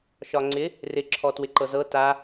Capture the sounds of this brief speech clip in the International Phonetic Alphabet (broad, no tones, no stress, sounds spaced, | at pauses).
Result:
ʃ ɒ ŋ͡ǀ ɪ | r ɪ ǁʰ ɔ t w ɪ ǃ ɤ z ɤ t a